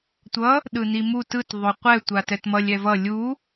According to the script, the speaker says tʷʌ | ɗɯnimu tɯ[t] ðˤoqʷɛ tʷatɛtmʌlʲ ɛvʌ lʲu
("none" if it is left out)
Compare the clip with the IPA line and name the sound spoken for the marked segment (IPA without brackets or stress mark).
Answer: t